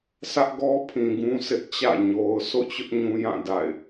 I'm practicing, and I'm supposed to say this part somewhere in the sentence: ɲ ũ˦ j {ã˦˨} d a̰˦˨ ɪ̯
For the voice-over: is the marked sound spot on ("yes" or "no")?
yes